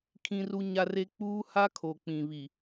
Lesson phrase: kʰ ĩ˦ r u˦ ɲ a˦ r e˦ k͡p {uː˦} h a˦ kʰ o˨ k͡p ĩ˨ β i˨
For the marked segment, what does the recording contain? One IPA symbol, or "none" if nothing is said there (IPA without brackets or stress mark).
uː˦